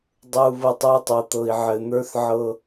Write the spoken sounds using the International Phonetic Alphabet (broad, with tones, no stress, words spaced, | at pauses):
dˤɤ˨u̯βɤ˨tˤ ə˞˦tˤɤ˨t̪ɤ˨i̯ ʕɘ˨n̪ə˞˦θ ʕɤ˦